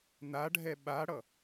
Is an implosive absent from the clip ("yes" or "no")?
no